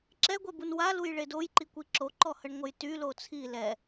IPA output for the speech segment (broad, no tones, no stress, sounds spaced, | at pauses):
ǁ ɛ ɡʷ ɛ b u n w a l u j ɭ e d o j ǃ i kʷ i ǁ o ǃ ɔ h ə ɳ ŋʷ ə j t y l o t͡sʰ i l ɛ